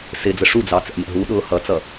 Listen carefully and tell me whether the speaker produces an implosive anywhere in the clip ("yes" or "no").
yes